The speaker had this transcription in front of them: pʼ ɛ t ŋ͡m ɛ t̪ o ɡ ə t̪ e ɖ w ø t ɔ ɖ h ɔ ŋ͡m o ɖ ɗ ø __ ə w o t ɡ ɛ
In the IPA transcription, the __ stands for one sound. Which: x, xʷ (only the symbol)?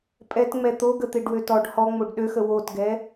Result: x